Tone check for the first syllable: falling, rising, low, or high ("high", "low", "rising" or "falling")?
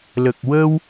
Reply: low